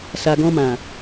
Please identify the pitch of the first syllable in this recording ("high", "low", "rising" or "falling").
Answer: low